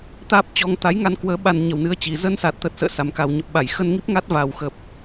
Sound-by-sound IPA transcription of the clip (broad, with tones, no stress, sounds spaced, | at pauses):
t̪ aː˦˥ p̚ t͡ɕ ɔ˧ ŋ t̪ a˨˦ j ŋ a˧ n k w əː˨˦ ɓ a˧ n ɲ ə˨˩ w n ɨ˧ ə̯ t͡ɕ i˨˩ z əː˧ n s a˨˩ t̚ t̪ ə˨˩ t̚ s ə̰ː˧˨ s a˨˩ m k a˨˩ w ɲ ə˨˩ p̚ ɓ a˧˩ j x ə˧ n ŋ i˦˥ p̚ ŋ a˦˥ t̚ v a˨˩ w x ə˨˩ p̚